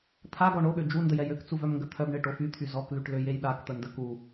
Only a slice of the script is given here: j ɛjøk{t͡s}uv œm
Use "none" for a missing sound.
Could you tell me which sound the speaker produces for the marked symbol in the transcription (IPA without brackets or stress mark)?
t͡s